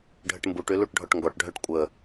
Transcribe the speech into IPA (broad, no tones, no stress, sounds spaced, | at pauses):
ɖʱ ə ʈ m b u ʈ y l u ʈ ɖʱ ɔ ʈ ŋ ɡ ɔ ʈ ɖʱ œ ʈ kʷʼ ə